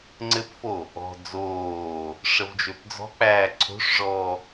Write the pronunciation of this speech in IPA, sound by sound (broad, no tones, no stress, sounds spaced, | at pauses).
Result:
ŋ͡ǀ ɘ p f o | ɔ̤ d͡z oː | ʂ ə v d͡ʒ ø p d͡z ɔ̤ k͡p æː ǀʰ o̤ ʂ ʐ ɔː